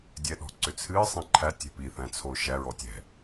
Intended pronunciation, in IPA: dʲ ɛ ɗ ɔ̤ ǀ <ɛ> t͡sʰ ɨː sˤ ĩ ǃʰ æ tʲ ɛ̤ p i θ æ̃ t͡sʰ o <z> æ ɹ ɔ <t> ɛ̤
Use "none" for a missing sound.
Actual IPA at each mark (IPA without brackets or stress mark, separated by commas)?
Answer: ʏ, ʃ, tʲ